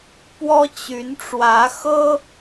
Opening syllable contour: high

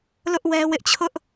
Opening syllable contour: high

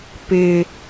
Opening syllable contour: low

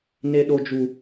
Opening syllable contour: high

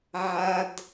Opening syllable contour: high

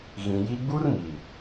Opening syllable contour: low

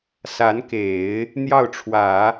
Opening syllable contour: rising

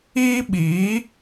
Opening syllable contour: high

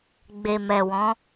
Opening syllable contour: low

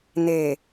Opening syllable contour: low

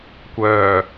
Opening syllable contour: low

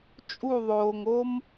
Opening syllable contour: falling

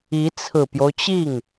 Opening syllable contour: rising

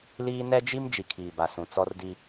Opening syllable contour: high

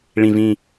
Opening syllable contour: low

